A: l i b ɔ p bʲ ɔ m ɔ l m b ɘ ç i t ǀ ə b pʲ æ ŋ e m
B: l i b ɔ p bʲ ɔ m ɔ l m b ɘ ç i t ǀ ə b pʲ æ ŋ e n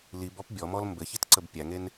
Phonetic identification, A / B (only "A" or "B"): B